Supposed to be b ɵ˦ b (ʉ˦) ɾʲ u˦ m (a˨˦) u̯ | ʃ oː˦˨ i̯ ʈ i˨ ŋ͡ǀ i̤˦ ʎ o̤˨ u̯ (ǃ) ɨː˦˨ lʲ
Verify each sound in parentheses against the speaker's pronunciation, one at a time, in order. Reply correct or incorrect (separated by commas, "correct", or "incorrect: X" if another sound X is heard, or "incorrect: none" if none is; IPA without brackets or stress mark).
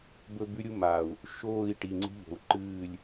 correct, incorrect: a˨, correct